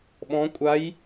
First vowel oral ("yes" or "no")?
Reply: no